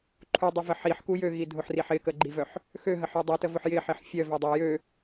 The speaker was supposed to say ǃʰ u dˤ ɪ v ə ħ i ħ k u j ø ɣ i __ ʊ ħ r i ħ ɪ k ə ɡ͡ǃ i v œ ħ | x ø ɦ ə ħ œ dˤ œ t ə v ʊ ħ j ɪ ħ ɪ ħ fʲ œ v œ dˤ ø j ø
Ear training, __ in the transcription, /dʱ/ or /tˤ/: dʱ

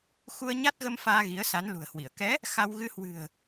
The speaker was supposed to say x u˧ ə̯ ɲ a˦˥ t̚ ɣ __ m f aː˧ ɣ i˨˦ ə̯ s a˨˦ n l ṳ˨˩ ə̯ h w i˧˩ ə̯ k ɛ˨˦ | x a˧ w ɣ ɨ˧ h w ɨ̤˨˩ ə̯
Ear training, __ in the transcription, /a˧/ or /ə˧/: ə˧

